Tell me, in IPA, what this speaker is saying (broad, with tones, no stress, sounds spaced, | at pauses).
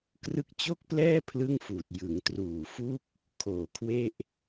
k r ɯ˦˥ k̚ t͡ɕ o˥˩ k̚ p l ɛː˥˩ pʰ l ɯ˥˩ ŋ f uː˨˩ t̚ j ɯ˩˦ ŋ t r uː˨˩ f u˥˩ k̚ | kʰ oː˨˩ kʰ w e˥˩ ʔ